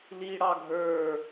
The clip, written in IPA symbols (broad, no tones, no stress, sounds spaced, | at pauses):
l i ɽ ɑ ɡʱ ə˞